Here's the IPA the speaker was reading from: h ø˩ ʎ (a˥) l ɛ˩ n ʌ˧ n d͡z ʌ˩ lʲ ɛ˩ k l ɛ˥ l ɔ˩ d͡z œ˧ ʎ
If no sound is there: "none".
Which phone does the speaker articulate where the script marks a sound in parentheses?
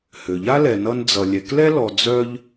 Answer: a˥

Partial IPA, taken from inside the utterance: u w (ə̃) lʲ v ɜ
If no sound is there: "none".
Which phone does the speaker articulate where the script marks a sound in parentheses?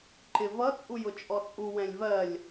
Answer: ɛ̃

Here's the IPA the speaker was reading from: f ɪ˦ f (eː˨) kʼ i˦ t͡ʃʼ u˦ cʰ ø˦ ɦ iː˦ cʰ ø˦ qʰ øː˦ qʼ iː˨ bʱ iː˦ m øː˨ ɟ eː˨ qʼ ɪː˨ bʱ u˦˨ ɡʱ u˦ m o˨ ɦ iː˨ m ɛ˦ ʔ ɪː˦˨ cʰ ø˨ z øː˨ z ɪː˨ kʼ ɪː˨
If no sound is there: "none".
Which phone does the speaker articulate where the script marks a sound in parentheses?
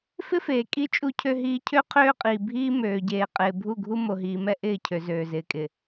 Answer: eː˨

